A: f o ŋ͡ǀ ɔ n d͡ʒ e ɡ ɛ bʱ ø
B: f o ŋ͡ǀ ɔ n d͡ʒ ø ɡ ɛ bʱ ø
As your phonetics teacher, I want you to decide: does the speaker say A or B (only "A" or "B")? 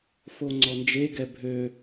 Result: A